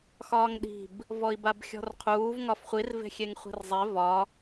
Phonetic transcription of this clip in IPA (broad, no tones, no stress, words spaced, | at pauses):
xɒːŋɗi̤b | vɔi̯babxʲɔ̤rqʰuːv ŋɒfχʷirve̤ xʲeŋχʷi̤rzˤe vɒ